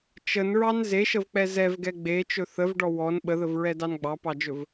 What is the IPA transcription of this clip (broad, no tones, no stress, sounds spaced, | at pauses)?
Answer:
t͡ʃ ə n ɹ ɑ n z e ʃ ə v k͡p ɛ z ɛ v ɡ ɛ ɡ͡b e t͡ʃ ɵ θ ə v ɖ ɔ w ɔ n ɓ ə ð ə v ɹ ɛ d ɑ n ɡ͡b ɑ p ɑ d͡ʒ ɵ v